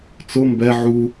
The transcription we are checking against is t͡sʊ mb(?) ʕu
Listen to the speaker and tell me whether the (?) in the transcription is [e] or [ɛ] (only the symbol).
ɛ